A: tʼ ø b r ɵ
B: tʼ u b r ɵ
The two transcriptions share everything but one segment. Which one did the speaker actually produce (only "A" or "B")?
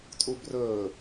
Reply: B